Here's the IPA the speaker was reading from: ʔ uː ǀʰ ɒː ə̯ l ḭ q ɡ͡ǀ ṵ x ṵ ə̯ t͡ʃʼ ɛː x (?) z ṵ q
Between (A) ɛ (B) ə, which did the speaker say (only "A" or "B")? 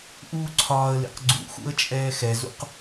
A